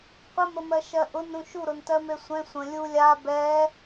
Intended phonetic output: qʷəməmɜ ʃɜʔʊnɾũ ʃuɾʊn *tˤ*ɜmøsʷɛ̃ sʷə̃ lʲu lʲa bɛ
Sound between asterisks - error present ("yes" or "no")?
yes